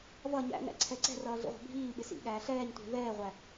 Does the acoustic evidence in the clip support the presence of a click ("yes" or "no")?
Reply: yes